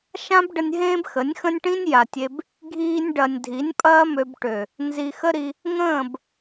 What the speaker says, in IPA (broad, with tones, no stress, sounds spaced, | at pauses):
ʃ ã˦ b ɖ ə˧ nʲ ɦ ẽː˦ b x ə˨˦ nʲ x ə̃˦ nʲ ʈ ĩ˦ nʲ j a˨ tʲ e˧ b | ɡʱ iː˧ nʲ ɖ ɐ˨ nʲ dʱ i˨˦ nʲ pʼ ɐː˦ m ø˧ b ʈ ø˨ | n z i˨ x ə˦ ɾ i˧ | ŋ ə̃ː˦˨ b